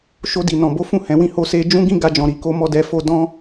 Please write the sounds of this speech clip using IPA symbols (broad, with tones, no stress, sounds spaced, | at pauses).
ʃ o˧ d i˨ n ɔ̃˨ b o˨˦ f ũ˦˨ h ɛ̃˨ w ĩ˧ h o˧ s e˧ d͡ʒ ũ˦ ɡ ĩ˦ ɡ a˧ d͡ʒ ɔ̃˨ ɾ i˨ k o˨˦ m ɔ˦˨ d ɛ˧ f o˦ d ɔ̃˦